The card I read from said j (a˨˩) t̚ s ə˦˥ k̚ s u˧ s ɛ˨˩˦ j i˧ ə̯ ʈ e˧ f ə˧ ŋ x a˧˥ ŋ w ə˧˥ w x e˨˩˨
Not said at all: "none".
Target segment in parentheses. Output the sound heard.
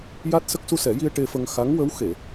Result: a˦˥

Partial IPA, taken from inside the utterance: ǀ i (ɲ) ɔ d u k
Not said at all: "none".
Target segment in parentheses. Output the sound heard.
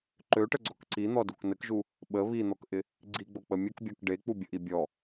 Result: n̪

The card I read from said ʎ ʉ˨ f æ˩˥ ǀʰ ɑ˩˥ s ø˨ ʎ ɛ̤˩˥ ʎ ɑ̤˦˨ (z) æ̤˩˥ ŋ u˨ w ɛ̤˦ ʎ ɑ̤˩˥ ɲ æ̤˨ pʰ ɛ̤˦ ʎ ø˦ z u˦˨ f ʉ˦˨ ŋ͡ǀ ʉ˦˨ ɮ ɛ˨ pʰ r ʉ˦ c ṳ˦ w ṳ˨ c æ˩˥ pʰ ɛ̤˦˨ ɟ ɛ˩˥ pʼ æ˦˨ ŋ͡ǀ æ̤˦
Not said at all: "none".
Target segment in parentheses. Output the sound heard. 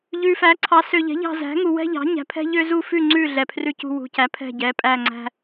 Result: z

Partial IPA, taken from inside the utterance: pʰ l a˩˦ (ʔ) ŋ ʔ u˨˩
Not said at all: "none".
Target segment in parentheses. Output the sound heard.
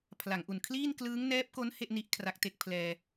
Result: none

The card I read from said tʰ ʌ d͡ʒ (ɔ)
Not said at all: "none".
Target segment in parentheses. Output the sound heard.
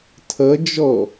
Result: ɔ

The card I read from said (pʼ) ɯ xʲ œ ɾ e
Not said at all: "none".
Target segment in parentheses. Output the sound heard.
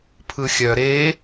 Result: pʰ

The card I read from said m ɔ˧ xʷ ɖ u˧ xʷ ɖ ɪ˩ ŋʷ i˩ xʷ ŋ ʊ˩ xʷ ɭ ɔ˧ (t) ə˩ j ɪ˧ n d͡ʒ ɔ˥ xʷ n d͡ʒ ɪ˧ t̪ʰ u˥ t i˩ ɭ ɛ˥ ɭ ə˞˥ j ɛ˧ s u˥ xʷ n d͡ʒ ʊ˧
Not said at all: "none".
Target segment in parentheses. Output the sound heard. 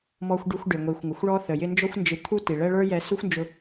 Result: θ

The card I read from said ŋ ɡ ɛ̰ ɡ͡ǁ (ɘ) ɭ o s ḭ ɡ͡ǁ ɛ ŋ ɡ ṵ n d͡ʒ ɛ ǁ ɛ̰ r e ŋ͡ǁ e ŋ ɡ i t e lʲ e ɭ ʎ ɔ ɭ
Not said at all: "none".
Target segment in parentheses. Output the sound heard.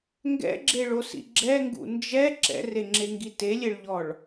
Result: e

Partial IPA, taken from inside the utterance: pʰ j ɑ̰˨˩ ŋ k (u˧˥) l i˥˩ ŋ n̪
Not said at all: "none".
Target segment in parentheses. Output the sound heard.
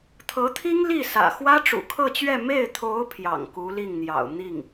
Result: u˧˥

